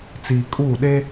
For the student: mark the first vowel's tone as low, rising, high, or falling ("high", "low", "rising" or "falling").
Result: low